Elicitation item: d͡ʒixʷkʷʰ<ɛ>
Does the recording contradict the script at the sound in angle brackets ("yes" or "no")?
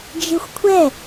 no